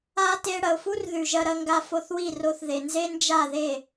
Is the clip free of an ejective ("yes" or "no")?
yes